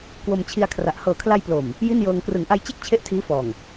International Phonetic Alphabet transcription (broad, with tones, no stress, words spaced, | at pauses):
kwo˧mt͡ɕʰi˧a̯kʰra˨˩ʔ hɤː˨˩kʰla˧j plo˨˩m | ji˥˩njɤː˧ŋ krɯ˩˦ŋʔa˧jt͡ɕe˥˩k̚ t͡ɕʰe˥˩ʔtʰiː˦˥ fɔː˨˩ŋ